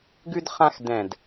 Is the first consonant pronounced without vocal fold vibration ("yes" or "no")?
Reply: no